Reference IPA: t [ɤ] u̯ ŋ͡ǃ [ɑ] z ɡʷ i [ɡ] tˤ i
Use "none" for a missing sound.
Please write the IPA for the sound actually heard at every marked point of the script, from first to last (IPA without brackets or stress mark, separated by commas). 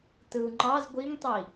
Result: ɯ, ɑ, ŋ